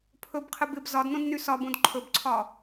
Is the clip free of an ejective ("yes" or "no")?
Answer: yes